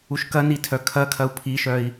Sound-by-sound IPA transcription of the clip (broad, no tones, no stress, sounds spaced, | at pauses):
u ʃ k ɐ n i tʰ œ kʰ ɐ kʰ ɐ u̯ pʰ i ʃ œ i̯